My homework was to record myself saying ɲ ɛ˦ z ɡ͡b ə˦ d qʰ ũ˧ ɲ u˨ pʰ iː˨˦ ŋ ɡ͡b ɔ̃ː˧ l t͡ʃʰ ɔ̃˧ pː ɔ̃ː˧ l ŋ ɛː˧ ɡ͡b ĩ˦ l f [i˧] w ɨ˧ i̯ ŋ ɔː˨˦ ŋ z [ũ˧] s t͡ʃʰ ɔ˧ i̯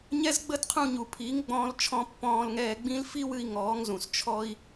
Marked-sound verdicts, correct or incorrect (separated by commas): incorrect, incorrect